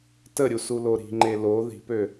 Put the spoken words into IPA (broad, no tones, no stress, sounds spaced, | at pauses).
t ə ɾʲ u s u l o ɾ i̤ ŋ͡ǃ e l o ð i̤ p ø